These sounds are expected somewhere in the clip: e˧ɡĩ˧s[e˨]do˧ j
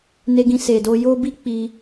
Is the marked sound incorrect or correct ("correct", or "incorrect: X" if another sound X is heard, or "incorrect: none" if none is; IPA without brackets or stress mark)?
correct